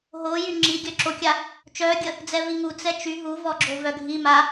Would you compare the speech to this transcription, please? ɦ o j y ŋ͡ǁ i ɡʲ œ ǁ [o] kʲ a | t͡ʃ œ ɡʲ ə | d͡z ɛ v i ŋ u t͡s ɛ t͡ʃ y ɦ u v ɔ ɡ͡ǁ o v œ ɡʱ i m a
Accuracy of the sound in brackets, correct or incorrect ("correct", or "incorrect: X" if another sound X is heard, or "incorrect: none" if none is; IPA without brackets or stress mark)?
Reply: correct